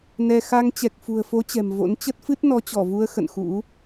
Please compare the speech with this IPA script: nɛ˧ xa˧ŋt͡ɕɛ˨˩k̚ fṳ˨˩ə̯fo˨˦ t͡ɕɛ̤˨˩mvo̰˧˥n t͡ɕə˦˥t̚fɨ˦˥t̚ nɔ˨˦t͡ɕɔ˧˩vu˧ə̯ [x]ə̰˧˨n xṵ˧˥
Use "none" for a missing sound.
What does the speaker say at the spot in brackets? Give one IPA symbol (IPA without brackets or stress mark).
x